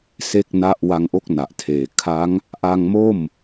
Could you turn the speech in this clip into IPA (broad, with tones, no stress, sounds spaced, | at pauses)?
s e˥˩ k̚ n a˥˩ ʔ w a˧ ŋ ʔ o˦˥ k̚ n a˨˩ ʔ tʰ eː˨˩ kʰ a˦˥ ŋ | ʔ a˧ ŋ m o˥˩ m